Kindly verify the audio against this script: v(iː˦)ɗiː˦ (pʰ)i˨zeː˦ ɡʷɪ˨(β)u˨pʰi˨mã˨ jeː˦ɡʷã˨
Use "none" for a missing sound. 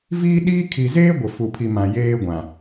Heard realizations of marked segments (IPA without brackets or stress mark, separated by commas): iː˦, kʰ, f